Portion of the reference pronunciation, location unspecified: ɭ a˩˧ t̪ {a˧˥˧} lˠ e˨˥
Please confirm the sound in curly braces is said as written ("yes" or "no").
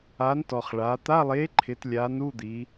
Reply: yes